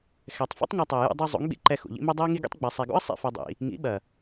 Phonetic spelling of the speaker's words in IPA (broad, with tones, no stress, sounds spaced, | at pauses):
x ɛ˨ tˤ f ṵ˦ tˤ ŋ ɐ˧ tˤ ɛ˨ j ṵ˧ dˤ i˧ zˤ ṵ˨˦ ŋ ɓ ḭ˨ ǃ ɛ˧ x ṵ˨ ʎ ḭ˦ m i˦ dˤ i˦ ə̯ ŋ i˦ ɡ ḭ˦ tˤ ɡ͡b ɛ˨ sˤ ɛ˨ ɡ ṵ˦ ə̯ sˤ ḭ˦ f ɐ˦ dˤ ḭ˧ | ŋ ḭ˨˦ ɓ ɐ˨